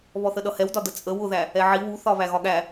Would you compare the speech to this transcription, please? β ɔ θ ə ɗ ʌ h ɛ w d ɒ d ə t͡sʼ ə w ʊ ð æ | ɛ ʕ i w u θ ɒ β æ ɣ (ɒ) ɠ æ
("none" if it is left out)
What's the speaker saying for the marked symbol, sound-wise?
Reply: ɒ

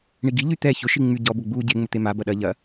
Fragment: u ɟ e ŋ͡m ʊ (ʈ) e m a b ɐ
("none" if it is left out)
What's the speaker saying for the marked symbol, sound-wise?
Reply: t̪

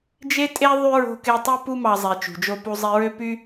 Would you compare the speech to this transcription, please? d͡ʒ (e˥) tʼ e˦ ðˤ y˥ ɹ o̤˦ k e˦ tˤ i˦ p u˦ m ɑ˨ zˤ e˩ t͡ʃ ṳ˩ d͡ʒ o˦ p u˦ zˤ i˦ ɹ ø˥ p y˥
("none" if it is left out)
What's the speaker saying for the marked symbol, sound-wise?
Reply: e˦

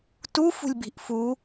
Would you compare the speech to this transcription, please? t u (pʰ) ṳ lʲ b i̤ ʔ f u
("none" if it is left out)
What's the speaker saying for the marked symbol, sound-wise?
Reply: f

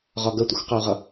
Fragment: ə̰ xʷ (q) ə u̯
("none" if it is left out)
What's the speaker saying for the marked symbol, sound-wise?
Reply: q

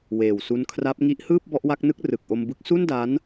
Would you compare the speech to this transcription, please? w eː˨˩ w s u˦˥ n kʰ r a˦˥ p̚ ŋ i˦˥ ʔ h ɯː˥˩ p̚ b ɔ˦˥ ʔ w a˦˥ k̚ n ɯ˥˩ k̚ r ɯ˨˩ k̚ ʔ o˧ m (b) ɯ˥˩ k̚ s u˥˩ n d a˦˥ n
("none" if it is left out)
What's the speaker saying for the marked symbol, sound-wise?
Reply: b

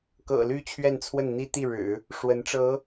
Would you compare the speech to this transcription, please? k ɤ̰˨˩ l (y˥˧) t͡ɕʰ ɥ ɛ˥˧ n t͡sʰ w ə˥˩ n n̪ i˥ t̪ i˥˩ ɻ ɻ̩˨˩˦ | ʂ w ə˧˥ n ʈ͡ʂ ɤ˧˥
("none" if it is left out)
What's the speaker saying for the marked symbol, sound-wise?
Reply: y˥˧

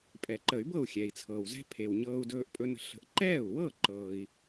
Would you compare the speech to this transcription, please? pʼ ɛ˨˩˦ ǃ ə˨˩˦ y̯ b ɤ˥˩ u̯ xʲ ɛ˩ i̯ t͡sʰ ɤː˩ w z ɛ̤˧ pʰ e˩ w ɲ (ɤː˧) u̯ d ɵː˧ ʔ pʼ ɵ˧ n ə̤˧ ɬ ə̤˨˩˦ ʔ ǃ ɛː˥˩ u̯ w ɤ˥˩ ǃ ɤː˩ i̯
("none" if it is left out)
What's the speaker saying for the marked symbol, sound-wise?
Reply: ɤː˧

